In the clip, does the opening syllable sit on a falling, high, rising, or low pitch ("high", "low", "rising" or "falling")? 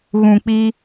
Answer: low